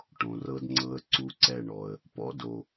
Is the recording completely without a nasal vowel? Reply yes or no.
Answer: no